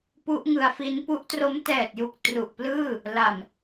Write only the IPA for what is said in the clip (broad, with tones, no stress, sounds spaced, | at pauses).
p u˦˥ ʔ ŋ ɯ˧ a̯ f i˦˥ n p u˦˥ ʔ t r o˦˥ m t ɛː˨˩ t̚ j u˨˩ k̚ t r u˨˩ ʔ p l ɯː˥˩ | l a˨˩ m